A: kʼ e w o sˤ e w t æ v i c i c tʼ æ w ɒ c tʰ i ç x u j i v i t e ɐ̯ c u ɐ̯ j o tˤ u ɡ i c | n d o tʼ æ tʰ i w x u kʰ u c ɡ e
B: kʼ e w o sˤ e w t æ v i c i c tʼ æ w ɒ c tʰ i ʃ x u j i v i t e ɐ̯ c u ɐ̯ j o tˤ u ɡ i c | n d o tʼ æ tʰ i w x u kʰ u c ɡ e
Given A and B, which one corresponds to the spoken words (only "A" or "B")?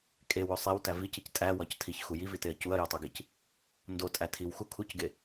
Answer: A